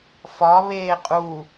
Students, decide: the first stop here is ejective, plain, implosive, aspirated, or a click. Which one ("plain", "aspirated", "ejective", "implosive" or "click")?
ejective